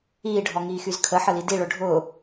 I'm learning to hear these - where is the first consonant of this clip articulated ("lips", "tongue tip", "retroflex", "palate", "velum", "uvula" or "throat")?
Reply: retroflex